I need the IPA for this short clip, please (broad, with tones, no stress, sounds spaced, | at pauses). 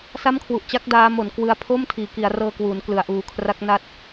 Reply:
s a˥˩ m kʰ w u˨˩ ʔ t͡ɕ a˥˩ k̚ d aː˦˥ m o˩˦ n k w ɯ˧ a̯ pʰ o˥˩ m tʰ iː˩˦ k i˩˦ a̯ r ɤː˧ k w uː˩˦ n k l ɯ˩˦ a̯ ʔ uː˨˩ kʰ r a˦˥ k̚ n a˦˥ t̚